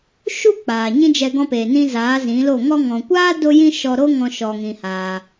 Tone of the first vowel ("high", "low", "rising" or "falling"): high